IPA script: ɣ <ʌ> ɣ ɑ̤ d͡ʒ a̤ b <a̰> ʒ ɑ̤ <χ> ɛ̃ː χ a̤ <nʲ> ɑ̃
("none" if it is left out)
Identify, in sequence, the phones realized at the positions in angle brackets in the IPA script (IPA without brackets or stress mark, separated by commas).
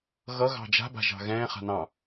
ʌ, a̤, ɣ, n